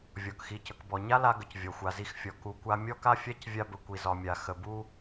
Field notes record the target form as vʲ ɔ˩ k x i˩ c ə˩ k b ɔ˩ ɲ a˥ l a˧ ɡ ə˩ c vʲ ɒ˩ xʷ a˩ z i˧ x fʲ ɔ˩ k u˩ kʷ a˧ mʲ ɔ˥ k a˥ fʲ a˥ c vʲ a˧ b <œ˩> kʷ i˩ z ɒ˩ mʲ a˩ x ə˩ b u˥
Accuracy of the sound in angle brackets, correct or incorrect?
incorrect